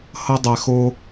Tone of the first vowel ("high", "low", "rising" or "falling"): high